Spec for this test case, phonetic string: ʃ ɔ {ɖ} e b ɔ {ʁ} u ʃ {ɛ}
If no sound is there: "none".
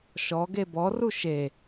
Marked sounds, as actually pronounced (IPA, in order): ɡ, r, e

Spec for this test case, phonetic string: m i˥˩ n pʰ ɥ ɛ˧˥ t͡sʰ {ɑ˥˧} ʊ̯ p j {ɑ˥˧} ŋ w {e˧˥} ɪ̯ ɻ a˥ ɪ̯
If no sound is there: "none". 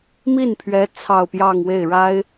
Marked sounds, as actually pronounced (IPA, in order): ɑ˥˧, ɑ˥˧, e˥˩

